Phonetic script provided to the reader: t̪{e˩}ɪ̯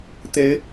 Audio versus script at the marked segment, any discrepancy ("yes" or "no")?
yes